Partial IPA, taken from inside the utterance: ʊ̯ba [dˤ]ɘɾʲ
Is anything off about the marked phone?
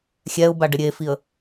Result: yes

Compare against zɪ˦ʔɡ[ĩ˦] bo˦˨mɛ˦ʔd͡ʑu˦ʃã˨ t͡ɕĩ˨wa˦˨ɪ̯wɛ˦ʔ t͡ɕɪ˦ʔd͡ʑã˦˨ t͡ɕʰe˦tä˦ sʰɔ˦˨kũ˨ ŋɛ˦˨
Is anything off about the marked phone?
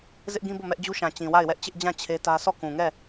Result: no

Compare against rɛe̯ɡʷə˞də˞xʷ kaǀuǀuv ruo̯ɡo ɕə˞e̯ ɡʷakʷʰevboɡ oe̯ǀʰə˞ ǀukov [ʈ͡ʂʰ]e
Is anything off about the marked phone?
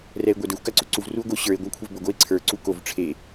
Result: no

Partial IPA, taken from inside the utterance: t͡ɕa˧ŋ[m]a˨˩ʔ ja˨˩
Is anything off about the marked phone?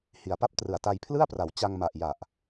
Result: no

